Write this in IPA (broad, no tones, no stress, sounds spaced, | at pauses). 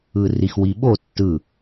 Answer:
ɯ r i x w i ɓ o tː ɯ